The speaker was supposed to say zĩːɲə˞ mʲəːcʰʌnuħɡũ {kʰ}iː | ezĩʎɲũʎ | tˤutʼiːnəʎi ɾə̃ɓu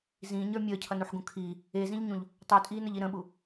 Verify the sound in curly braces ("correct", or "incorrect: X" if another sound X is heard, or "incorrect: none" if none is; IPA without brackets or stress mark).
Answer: correct